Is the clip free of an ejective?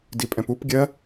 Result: no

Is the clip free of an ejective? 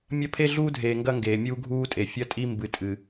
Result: no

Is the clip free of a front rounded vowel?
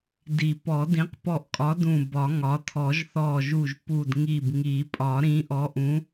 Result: yes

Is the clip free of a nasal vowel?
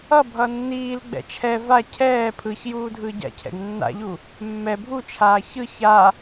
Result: yes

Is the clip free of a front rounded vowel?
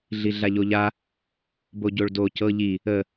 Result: yes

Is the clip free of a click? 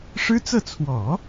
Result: yes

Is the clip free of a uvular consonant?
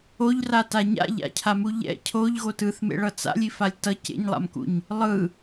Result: yes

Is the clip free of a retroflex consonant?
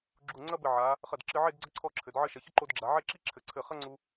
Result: yes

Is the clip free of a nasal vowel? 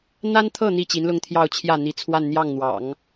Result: yes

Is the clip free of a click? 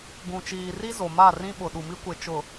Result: yes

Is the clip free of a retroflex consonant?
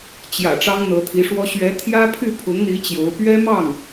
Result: no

